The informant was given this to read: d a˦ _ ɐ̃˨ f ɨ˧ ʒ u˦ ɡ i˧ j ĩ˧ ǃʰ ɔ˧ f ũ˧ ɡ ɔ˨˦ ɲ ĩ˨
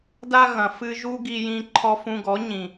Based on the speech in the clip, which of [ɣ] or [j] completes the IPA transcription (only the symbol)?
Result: ɣ